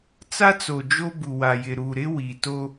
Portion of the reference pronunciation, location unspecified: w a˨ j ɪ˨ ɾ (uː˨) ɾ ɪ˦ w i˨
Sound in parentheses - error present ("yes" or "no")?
no